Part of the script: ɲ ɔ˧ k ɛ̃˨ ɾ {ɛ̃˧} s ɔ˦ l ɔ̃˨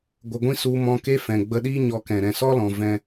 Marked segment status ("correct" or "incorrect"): incorrect